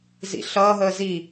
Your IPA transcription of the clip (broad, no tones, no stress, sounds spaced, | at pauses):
z ḭ ɬ ʌː ɦ əː z i